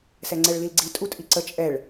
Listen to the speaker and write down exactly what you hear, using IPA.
s ɛ ŋ͡ǀ ɛ ɭ l i l ɡ͡ǀ i tʼ u tʼ i ǀ ə t͡ʃʼ ɛ ɭ

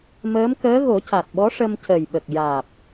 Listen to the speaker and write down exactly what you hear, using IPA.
m əː˧˥ m k əː˧˥ ɣ o˨˩˦ c a˨˩ t̚ ɓ ɔ˧˥ ʂ ə˧ m c ə˨˩ j ɓ ə˨˩ k̚ j aː˨˩ p̚

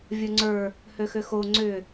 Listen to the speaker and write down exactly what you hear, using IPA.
vʲ o ŋ͡ǀ ə˞ | h ø x ʏ x o ŋ͡ǀ ʏ

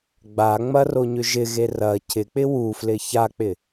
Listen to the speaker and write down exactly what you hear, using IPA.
ɡ͡b a ŋ͡m ɐ r o ɲ ʏ ʒ ɪ ɣ e r ɐ cʰ ɪ k͡p ɪ w u f l ɪ ç a k͡p ɪ

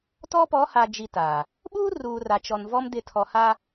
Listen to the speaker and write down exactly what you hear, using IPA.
t ɔ˦ p ɔ˨˦ h a˨ d͡ʒ i˨ t a˨ | ɓ uː˦ r uː˨ r a˨ t͡ʃ ɔ˨ n v ɔ˦ m d ɪ˨ tʰ ɔ˨ h a˦

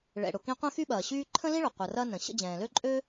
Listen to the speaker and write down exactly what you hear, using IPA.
ɭ ɛ̰˨ ɽ ʊ˨ k ĩ˦ qʷ ɛ̃˦ x y˦ ɓ ɐː˩ ɕ yː˦ ǃʰ ə̃˥ l ĩ˥ ɭ ʊ˩ qʷ ɐ˨ r ɐ˦ n ə̃˩ ɕ ə̰˥ d͡ʑ ɛ̃ː˩ l ø˥ ǃʼ ø˥

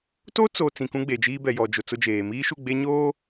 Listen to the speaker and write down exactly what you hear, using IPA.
t o˦ t͡s o˨ t͡s ĩ˨ k ũ˦ ɡ͡b e˨ d͡ʒ iː˦ b ɛ˨ j ɔ˨ d͡ʒ ʊ˨ t͡s ʊ˦ d͡ʒ eː˨ m iː˦ ʃ u˦˨ ɡ͡b e˦ ɲ oː˦

